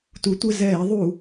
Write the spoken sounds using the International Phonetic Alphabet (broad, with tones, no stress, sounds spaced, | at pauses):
t u˩˧ tʷ ɘ˩˧˩ z ɛː˧˩˧ ðˤ u˧˩˧